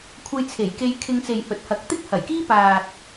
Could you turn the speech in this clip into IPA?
kʷʰ ɐ˧ j t͡sʰ e˨˩ j k e˧ j kʰ ɪ˧ ŋ t͡s e˨ j h ɵ˨˥ t̚ h ɐ˨˥ k̚ t̪ ɪ˥ k̚ h ɐ˨˩ j k iː˥ p aː˨ t̚

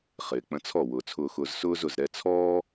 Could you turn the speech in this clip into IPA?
χ ɪː˨ k͡p ə̃˧ t͡sʰ ɔ˦˨ w ʊː˨ t͡sʰ ʊː˧ x ʊː˧ z s ʊː˦ z ʊ˨ z ɾ ɛ˧ t͡sʰ ɔː˦

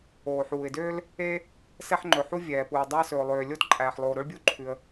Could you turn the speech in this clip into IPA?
oː˩ ħ uː˩ ɪ̯ d øː˥ l | e˥ | s ɛ˥ ħ ŋ͡ǃ ɵ˩ ħ u˥ vʲ ɛː˩ p uː˩ dˤ æ˥ s ɵ˩ ʊ̯ lˠ øː˩ lʲ o˥ t ǃʼ æː˩ ħ lˠ oː˩ ɾ o˥ ɭ bʲ u˥ ǃʰ ʉ˩ ə̯

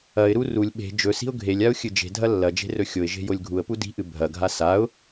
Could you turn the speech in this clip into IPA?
ɐ ɪ̯ ɾ u r u lʲ ɓ e̤ d͡ʒ ɵ s i̤ ʊ̯ ɡʱ e lʲ a ʊ̯ xʲ ɨ d͡ʒ e̤ dʱ ɐ lː ɐ d͡ʒ e̤ r ɵ xʲ o ɪ̯ ʒ e̤ j o lʲ ɡʱ u ə̯ p u d i̤ ʔ ɨ bʱ ɐ ɡʱ a s a ʊ̯

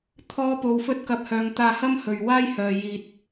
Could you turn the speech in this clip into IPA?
t̪ʰ ɔː˥ p o˧ w f ɵ˥ t̚ k ɐ˧ p̚ h œː˨ ŋ t̪ aː˧ h ɐ˥ m h ɵ˧ ɥ w aː˥ j h œː˨ j iː˧ t̚

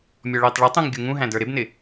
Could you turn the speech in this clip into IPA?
mʲ ɔ ɭ ɪː tˤ ɭ ɛ tˤ ũ ŋ ɡʲ u ŋ ũ ɦ æ̃ d ə˞ ɾ ɪ b n ɪ

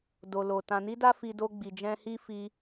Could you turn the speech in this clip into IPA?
d o˨ l o˨ t ã˨ n i˧ d a˦ f i˧ d o˧ ɡ͡b i˨ d͡ʒ ɛ̃˧ h i˦ f i˧

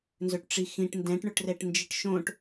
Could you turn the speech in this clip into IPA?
n z ɵ ʈ ʈ͡ʂ i x ĩ ʈ n d ɛ̃ ʈ ɳ ɵ ʈ r ɛ ʈ n d͡ʒ i ʈ ʃ õ ʈ

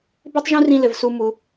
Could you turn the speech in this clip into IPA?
b e˦ tˤ ʒ ũ˦ r ĩ˦ l ɘ˨ v s u˦ m u˨˦

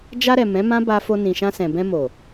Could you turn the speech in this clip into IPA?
d͡ʒ a˧ ɾ ɛ˨ m ɛ̃˨˦ m ã˦ b a˧ f o˧ n ĩ˨ ʃ ã˧ s ɛ̃˨ b ɛ̃˧ m o˨

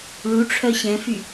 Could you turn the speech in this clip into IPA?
ɭ u ʈ͡ʂʰ œ ɕ ɛ̃ f y

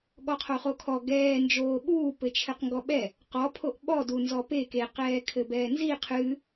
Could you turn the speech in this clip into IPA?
ɠ ɔ qʰ o χ o kʰ ɔ ɡ ɛː n d͡ʒ oː ɓ uː p ɘ t͡ʃʰ ɘ q ŋ ɡ ɔ ɓ ɛ | q ɔ pʰ o ʔ ɓ ɔ d u n z ɔ p e k e q ɛː kʰ ɘ b ɛː n z i qʰ ɨ

